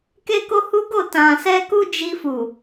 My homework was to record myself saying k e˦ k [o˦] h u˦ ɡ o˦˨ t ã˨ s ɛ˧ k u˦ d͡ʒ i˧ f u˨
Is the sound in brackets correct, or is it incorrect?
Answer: correct